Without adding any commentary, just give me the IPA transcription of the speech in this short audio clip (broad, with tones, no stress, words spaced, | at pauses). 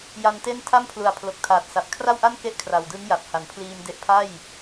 ja˧nte˥˩n tʰa˥˩mpʰlu˨˩a̯ pʰlo˨˩k̚tʰaː˨˩t̚sa˨˩p̚ kʰra˥˩wʔa˥˩nke˦˥ʔ kʰra˨˩wdɯ˦˥ŋja˨˩p̚ ha˩˦npʰliː˧mde˦˥ʔ pʰa˥˩j